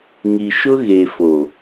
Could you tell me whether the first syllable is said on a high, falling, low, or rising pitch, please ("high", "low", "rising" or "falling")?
low